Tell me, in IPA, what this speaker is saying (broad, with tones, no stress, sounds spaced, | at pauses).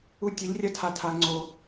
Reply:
u˧ tʲ ɐ˨˦ ʎ rʲ ɐ˦ tʰ a˨ tʰ a˨ ŋ͡ǀ o˨